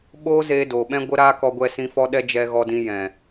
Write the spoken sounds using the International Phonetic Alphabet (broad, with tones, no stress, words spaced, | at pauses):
ɓoː˦zeː˧ doː˨ɓɛ̃˦ɡʷə˦ ɾaː˦kɔ˧ɡʷɛ˧sĩ˧ fɔ˧ɗɛ˧ d͡ʒɛ˧ɣɔ˧dĩ˧ jɛ̃˨